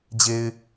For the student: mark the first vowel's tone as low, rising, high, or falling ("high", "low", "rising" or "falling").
low